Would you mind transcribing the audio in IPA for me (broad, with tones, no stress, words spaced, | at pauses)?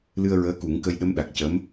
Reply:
lɨ˧ə̯ɹəː˧˥ku˨˩˦ŋkə˧j ɗə˧˥mɗa˨˩k̚cə˧˥m